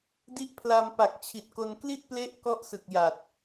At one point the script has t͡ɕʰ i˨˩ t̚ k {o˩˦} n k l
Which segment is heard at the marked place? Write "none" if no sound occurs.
o˧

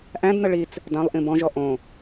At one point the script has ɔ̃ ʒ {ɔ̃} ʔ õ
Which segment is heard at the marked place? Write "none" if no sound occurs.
ɔ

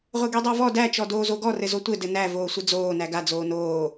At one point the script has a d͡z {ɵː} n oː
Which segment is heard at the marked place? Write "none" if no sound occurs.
oː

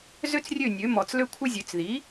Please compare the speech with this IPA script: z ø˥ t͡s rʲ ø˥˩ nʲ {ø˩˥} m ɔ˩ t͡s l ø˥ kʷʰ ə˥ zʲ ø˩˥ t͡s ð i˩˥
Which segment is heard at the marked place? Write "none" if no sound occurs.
ø˩˥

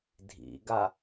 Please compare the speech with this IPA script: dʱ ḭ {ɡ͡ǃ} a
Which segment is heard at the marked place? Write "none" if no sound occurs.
ɡ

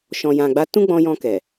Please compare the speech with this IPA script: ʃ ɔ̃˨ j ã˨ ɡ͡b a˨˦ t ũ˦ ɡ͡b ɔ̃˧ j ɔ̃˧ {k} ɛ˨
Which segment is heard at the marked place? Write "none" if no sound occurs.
k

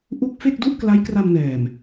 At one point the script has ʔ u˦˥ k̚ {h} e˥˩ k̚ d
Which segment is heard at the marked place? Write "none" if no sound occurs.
f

